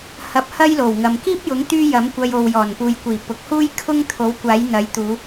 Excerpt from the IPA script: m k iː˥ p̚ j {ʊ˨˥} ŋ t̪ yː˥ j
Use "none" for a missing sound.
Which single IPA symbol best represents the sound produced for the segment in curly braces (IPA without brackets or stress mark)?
ʊ˨˥